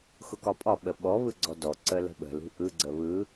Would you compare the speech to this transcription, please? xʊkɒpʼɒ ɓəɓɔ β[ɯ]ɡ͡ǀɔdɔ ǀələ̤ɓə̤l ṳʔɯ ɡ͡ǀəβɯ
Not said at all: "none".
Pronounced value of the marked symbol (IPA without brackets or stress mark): ɯ